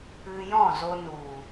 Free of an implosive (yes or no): yes